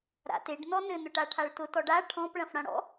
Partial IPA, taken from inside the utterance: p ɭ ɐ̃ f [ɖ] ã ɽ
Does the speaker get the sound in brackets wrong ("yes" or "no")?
yes